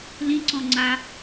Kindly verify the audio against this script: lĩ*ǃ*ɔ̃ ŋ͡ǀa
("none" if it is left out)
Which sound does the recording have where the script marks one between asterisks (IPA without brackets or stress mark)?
ǀ